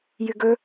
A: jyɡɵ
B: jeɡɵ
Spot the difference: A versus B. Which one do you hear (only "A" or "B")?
A